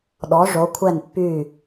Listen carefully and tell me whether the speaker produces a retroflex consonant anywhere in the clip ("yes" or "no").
yes